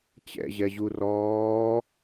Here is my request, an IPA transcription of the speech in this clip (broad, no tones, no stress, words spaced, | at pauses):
t͡ɕɛ̰ʑɛʑu rɔː